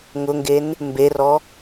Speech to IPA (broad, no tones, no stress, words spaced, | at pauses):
ŋʊŋɡen | mberɔ